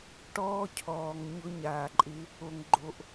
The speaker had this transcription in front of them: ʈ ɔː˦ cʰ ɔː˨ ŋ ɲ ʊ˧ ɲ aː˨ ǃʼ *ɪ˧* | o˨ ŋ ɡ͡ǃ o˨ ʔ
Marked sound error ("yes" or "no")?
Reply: no